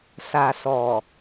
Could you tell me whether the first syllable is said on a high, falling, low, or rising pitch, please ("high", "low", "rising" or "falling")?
low